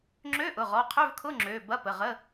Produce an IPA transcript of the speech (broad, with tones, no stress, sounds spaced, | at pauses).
ŋ͡ǁ ø˧˥˧ ʔ ʊ˩˧˩ ʁ ɔ˩˧˩ qʰ ø˧˥˧ v kʰ ʊ˧˥˧ ŋ͡ǁ ø˩˧˩ b ɐ˧˥˧ p ə˩˧˩ ʁ ə˧˥˧